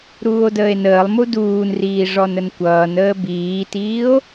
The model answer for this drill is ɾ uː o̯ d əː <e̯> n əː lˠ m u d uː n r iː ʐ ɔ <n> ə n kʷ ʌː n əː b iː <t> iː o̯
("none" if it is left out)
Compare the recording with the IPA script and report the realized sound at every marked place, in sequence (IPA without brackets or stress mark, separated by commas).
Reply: e̯, n, t